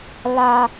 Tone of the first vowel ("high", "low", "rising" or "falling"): high